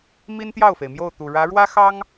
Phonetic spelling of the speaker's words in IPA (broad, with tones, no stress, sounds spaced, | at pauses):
m i˥ n t̪ j ɑ˥˩ ʊ̯ f e˩ ɪ̯ m j o˥˩ ʊ̯ t̪ u˨˩ ɻ ä˧˥ ɻ w ä˥ x ɑ˥ ŋ